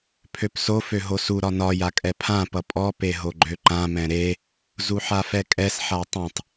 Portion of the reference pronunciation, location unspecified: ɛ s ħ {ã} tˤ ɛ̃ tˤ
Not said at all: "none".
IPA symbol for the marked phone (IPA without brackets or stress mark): a